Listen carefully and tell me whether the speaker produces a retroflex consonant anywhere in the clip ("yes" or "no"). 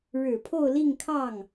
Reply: yes